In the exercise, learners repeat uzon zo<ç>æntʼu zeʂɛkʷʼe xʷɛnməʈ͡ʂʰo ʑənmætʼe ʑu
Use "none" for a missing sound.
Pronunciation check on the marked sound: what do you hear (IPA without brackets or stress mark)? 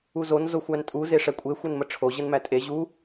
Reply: xʷ